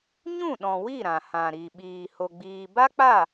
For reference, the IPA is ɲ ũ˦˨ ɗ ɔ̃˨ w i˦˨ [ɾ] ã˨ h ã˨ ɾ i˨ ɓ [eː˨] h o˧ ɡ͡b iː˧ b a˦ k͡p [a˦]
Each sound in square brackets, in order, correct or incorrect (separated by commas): correct, incorrect, incorrect